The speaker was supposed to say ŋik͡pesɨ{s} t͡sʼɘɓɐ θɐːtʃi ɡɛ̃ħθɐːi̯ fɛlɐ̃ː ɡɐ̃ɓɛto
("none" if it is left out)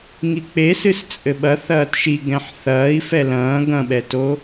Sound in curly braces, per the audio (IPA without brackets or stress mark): s